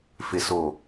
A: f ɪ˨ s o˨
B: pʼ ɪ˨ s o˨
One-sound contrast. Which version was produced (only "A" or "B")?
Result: A